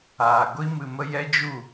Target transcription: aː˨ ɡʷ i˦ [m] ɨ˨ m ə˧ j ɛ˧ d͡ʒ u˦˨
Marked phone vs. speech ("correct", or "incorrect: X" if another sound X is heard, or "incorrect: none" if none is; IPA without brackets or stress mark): correct